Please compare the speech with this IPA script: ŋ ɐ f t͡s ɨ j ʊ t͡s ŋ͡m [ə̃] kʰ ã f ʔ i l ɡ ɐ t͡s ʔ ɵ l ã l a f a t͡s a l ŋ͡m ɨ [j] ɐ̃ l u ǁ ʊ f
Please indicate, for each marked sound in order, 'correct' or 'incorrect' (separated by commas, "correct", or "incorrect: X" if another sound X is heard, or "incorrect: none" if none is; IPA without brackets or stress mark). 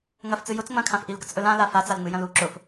incorrect: ɐ̃, correct